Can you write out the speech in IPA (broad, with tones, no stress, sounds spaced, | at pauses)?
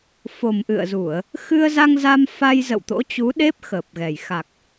f o˨˩ m ʔ ɨ̰˧˨ ə̯ z u˧˩˨ ə̯ | x ɨ˧ ə̯ z a˧ ŋ z a˧ m f a˧ j z ə̰˧˨ w t̪ o̰˧˥ t͡ɕ u˨˦ ɗ e˦˥ p̚ x əː˨˩ p̚ ɣ ɛ˨˩ j x a˨˩ k̚